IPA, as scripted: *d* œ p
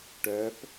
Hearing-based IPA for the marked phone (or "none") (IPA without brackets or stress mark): ʈ